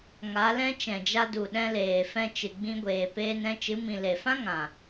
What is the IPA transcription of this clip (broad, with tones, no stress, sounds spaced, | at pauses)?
ŋ a˨˦ l ɛ̃˦ t͡ʃ ɛ̃˨ d͡ʒ a˧ d u˨ ɗ ɛ̃˧ l eː˨ f ɛ̃˧ t͡ʃ ɨ˨ ɡ͡b ĩ˧ ɡʷ eː˨ p eː˧ n ɛ̃˧ t͡ʃ ɨ˨˦ m ĩ˨ l e˨ f ã˦ ŋ ã˨